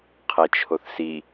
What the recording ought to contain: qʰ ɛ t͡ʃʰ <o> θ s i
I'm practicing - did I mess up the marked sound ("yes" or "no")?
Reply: no